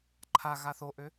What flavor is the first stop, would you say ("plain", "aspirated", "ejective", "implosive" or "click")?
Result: click